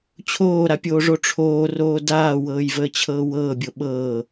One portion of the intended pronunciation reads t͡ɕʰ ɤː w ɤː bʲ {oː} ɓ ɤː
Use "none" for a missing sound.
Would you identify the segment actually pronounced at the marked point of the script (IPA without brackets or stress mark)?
o